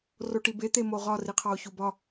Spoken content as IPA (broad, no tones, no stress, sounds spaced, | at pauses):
r o ʈ i b e t̪ e m o ʁ ɒ r i qʰ ɒ o̯ ç u b ɒ